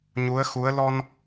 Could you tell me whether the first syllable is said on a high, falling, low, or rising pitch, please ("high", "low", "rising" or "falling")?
rising